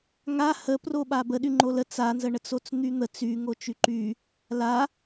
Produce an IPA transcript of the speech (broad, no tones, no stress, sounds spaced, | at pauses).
ŋ a h ə p r o ɓ a b ə ɗ y ŋ͡ǃ o l ə t͡s a n z ə ɳ ə t͡s o t͡s n̪ y n̪ ə t͡s y ŋ o t͡ʃ y ǃ y | l a